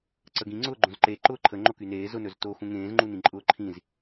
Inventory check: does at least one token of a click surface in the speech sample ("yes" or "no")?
yes